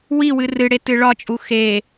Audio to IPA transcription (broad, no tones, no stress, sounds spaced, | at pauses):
w i w ɨ r ɨ ɽ e t ɨ ɭ ɒ t͡ʃʼ u x e